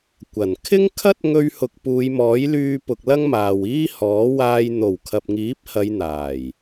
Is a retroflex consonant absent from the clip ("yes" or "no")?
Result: yes